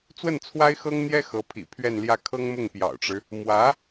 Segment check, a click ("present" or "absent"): absent